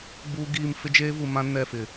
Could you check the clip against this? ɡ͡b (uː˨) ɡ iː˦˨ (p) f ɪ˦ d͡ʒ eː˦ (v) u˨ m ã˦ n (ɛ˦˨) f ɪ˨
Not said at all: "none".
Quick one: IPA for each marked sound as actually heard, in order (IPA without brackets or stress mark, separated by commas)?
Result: uː˦, m, v, ɛ˦˨